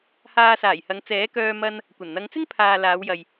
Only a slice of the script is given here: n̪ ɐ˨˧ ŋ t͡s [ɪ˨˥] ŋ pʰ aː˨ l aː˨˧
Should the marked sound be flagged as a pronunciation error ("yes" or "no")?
yes